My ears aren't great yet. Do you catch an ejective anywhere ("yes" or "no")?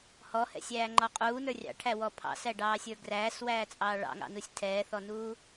yes